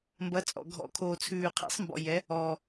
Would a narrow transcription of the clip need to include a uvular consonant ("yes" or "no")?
yes